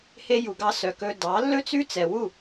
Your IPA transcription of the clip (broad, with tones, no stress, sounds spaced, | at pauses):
h e˧ j u˨ ɡ ɑ˧ s œ˨ k ɵ˧ d ɑ˨˦ lː ɵ˦ t͡s ʉ˦ t͡s ɛ˨ w u˦˨